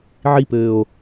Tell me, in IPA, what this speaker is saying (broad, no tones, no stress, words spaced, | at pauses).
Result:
ʕipɘːo̯